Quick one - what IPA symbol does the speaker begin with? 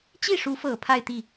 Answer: t͡ɕ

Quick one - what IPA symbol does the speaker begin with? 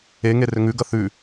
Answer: e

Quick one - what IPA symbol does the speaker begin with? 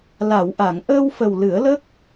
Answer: l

